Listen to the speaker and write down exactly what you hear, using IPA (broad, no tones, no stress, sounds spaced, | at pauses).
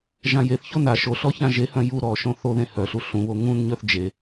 ʒ ã j e θ ç o n a ʃ o ɬ ɔ ç ã ʒ e h œ̃ j u ɾ ɔ ʃ õ θ o ð ẽ h œ ɬ u ɬ ũ β o ŋ ũ n ɲ œ θ d͡ʒ e